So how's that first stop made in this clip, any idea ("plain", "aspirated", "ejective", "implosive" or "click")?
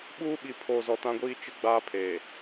implosive